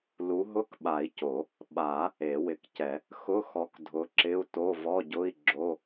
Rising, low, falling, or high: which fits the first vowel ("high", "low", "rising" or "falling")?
rising